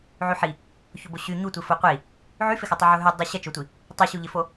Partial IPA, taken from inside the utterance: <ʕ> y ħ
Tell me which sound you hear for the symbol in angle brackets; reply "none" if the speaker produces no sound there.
ʕ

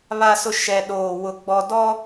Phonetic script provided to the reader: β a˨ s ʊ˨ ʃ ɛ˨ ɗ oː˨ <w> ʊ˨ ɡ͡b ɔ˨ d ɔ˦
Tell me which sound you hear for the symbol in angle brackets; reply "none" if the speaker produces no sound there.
w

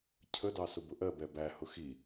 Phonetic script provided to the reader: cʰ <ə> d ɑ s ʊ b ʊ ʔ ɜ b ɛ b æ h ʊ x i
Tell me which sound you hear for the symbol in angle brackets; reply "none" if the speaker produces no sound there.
ə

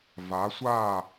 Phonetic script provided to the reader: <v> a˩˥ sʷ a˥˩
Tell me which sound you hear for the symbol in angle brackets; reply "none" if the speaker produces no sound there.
v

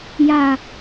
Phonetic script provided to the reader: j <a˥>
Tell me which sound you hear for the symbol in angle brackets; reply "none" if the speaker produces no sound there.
a˧˩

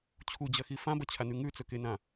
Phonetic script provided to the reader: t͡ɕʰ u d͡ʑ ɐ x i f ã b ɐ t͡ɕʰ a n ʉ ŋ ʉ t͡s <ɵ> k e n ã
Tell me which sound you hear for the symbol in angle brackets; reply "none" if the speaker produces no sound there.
ɵ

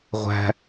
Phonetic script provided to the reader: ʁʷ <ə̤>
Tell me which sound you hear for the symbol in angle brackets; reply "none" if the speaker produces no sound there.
æ̤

